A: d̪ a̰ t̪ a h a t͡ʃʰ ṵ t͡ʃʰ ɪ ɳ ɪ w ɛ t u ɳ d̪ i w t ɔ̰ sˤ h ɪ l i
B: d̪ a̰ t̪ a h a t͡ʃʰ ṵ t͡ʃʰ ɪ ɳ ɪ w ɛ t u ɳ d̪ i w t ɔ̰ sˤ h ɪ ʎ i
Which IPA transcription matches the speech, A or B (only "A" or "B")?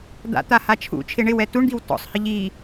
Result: B